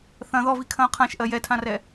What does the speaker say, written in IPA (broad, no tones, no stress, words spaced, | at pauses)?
θɐ̃ ðɔvikʰɐ̃ʊ̯ qʰãʃʔɜ jɛtʰãrɛ